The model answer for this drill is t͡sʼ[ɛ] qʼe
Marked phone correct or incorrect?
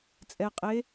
correct